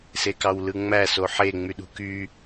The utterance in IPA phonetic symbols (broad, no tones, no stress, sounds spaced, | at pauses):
s e k ɑ w l ɯ ŋ͡m æ s o ħ e ŋ͡m y ɗ ṳ k y